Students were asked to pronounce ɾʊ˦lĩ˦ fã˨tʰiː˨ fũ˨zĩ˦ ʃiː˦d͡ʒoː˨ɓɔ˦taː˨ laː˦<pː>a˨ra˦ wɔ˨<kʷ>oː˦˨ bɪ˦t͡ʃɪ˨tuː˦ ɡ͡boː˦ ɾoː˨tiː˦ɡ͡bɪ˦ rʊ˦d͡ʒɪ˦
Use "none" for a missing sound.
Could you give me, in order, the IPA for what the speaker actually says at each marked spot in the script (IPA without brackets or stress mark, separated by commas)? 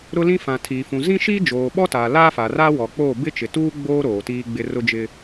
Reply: f, k͡p